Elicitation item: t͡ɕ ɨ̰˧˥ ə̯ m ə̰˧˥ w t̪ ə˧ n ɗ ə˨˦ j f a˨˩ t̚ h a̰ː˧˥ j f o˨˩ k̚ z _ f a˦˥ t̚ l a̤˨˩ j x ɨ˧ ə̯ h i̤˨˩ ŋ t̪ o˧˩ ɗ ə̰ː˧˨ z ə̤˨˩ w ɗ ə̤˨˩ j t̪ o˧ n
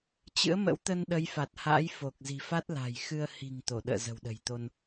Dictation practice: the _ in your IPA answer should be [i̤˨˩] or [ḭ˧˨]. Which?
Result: i̤˨˩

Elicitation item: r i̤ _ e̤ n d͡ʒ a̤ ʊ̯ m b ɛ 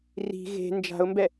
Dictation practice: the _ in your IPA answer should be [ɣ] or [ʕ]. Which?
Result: ɣ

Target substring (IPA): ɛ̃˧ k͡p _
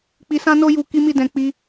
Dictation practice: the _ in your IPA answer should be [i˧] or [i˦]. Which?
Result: i˦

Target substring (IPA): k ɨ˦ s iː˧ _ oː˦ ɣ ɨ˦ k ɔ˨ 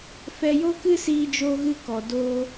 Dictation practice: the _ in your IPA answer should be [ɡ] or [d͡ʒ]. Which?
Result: d͡ʒ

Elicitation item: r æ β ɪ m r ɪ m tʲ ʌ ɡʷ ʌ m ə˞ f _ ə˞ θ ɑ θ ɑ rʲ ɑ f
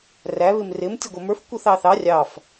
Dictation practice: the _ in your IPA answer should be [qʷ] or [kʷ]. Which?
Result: kʷ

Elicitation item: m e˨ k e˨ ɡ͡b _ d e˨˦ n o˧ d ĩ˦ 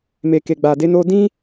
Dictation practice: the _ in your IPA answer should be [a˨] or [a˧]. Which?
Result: a˨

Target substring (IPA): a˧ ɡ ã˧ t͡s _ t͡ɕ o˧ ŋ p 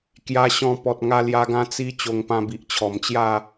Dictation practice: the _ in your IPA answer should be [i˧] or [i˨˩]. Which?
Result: i˧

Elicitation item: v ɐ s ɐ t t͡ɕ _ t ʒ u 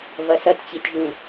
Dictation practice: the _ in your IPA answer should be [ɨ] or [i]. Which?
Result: i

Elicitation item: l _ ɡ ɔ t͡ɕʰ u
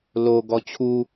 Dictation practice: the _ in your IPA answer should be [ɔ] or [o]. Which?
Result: o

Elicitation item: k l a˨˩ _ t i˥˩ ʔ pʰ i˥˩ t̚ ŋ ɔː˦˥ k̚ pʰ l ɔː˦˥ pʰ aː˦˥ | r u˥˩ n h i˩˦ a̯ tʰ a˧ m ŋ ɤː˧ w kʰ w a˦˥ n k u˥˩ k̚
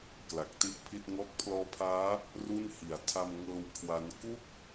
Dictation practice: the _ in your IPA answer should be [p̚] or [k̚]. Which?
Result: k̚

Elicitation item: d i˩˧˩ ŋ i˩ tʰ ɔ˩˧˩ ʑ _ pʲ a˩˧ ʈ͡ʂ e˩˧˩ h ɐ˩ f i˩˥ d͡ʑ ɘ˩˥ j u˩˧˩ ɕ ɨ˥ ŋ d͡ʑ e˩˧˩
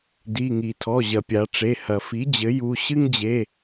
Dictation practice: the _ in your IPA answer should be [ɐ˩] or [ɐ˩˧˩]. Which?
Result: ɐ˩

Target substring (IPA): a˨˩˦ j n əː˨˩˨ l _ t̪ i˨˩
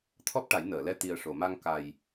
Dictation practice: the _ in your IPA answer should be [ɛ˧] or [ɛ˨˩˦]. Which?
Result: ɛ˧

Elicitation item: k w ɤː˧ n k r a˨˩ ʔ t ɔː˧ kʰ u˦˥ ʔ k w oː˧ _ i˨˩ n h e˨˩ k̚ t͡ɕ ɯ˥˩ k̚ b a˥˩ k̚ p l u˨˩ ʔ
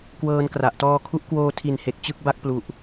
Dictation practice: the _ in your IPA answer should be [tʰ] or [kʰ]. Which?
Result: tʰ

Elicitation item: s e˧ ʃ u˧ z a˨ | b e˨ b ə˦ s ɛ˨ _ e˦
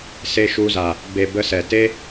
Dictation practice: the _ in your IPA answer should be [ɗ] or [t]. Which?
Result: t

